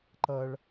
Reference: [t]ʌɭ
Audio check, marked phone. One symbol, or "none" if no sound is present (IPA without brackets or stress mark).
ǃ